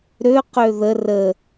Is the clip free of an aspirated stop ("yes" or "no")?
yes